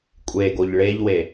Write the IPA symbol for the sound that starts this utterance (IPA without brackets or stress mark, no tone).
kʷʼ